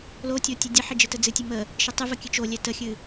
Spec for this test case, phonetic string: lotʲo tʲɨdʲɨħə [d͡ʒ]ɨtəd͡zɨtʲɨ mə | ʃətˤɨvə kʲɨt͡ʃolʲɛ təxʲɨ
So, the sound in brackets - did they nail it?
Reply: yes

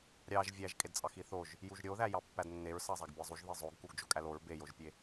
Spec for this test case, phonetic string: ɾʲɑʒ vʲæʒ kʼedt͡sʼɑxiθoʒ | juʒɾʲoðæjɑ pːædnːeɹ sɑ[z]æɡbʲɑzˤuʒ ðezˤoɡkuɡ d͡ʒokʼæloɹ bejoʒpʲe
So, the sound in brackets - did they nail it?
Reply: no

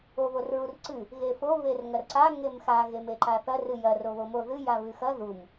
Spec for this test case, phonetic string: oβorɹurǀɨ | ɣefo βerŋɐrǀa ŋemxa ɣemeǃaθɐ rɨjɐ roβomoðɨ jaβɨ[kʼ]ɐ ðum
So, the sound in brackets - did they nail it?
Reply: no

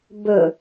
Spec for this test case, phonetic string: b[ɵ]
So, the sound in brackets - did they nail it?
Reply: yes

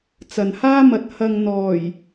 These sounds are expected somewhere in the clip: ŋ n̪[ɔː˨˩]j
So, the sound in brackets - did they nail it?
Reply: yes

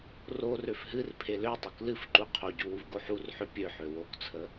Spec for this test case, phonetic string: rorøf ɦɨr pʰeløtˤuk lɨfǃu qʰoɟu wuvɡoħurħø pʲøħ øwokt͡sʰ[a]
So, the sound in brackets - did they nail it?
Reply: no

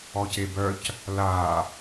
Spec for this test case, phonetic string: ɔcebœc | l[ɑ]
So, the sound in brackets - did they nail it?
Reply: no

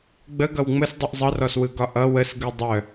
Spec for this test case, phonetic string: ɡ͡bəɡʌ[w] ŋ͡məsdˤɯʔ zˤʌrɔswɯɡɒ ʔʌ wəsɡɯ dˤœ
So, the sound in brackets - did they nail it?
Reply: yes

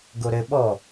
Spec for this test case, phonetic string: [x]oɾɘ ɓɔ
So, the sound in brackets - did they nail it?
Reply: no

